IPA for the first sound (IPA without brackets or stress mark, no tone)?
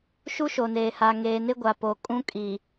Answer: ʃ